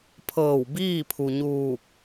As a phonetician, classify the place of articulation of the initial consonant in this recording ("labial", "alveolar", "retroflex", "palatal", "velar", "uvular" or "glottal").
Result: labial